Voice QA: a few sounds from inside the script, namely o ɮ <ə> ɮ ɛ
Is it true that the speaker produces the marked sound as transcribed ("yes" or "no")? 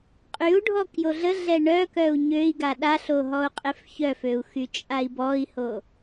yes